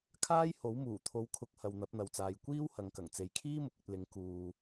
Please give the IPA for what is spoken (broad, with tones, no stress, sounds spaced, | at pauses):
kʰ aː˥ j h o˨˥ w m uː˨˩ t̪ʰ o˨˥ w kʰ ʊ˨˥ k̚ h ɐ˨ w n̪ ɐ˨˥ p̚ n̪ ɐ˨ w t͡s aː˨ j kʷ iː˥ w h ɐ˨˧ ŋ k ɐ˨˩ ŋ t͡s e˨ j kʰ iː˥ m ʊ˨ k̚ ɵ˧ t̚ l ɪ˨˥ ŋ k uː˨